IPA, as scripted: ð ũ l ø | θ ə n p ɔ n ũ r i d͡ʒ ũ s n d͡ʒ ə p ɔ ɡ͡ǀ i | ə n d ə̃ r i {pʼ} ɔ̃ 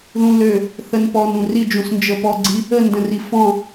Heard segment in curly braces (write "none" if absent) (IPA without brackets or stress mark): f